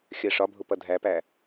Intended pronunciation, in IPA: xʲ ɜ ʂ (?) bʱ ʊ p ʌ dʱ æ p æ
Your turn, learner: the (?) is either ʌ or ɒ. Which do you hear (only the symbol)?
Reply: ɒ